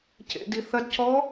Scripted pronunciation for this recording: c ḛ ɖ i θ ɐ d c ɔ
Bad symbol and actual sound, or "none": ɖ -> d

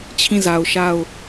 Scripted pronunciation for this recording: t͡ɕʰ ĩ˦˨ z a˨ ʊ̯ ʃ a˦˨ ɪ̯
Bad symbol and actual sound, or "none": ɪ̯ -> ʊ̯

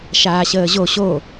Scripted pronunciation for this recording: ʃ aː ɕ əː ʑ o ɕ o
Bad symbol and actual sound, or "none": none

